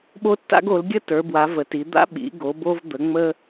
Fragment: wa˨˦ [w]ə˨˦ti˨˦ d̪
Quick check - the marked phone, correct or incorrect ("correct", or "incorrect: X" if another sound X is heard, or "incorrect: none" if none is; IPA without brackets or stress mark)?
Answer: incorrect: v